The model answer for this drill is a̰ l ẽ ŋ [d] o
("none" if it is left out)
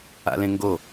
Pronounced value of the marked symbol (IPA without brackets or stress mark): ɡ